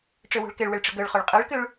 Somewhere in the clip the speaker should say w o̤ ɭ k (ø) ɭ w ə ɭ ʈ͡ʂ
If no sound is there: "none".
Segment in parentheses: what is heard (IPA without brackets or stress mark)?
ɛ